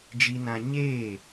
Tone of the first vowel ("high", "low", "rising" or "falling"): high